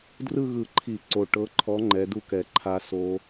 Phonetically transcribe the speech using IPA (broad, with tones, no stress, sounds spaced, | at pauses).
d r ɯ˥˨ ɣ ɯ˧˩˧ ǃʰ i˧˩˧ ǀ o˨˩ ʈ ɤ˨˦ ǃʰ ɔ˨˦ ŋ͡ǃ ɛ˨˦ d u˥˨ k ɛ˨˩ ǃʰ a˦˥ s o˦˥